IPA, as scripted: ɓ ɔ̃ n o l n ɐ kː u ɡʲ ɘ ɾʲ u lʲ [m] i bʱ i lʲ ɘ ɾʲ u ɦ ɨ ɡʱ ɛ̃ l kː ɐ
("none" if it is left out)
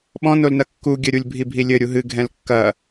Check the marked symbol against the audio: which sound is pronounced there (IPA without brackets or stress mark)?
bʱ